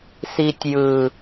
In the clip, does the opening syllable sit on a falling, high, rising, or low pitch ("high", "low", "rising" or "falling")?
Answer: low